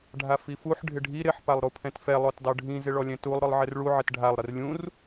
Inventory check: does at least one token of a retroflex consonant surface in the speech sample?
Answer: yes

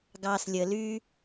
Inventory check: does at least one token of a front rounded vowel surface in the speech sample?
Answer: yes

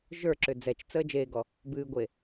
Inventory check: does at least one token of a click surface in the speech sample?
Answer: yes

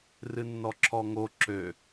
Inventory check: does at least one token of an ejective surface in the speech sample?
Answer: no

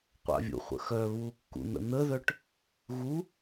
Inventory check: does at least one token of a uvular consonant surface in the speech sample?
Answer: yes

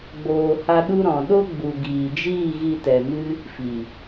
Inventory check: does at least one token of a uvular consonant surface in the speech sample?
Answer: no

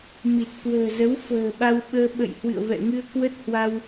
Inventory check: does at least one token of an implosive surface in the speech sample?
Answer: yes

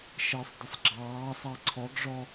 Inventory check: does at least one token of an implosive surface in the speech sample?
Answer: no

